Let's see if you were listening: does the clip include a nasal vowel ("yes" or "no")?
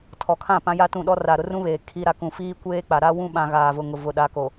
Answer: yes